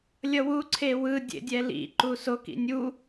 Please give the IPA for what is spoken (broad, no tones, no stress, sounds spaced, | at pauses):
lʲ ʌ w u ǀʰ e w ɯ dʲ ḛ dʲ ɛ l ḭ ǃ u s o k ḭ nʲ u